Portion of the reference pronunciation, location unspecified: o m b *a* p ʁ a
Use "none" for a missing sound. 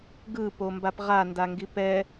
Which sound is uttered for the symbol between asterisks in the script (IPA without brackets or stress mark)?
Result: a